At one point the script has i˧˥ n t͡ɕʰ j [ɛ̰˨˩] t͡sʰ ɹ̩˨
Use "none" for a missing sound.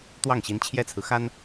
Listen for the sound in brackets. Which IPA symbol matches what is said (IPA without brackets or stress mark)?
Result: ɛ˥